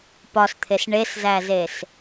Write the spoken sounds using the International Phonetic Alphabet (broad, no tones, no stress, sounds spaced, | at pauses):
p ɒ s t̪ʰ e s ɳ e s z æ z e s